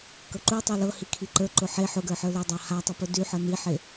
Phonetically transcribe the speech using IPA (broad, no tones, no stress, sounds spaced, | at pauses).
k ɤ ǃ u tˤ i l ɤ h i kʰ i ǃ ə˞ ǃ ʊ ħ e ħ ʊ ɡ ə˞ ħ ə˞ l e dˤ a h a tˤ ʊ p ʊ d y ħ ɤ n i ħ e